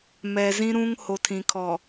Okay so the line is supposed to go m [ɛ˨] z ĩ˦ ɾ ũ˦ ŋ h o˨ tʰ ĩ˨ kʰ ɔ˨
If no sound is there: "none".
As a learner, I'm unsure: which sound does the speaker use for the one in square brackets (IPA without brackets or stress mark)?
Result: ɛ˨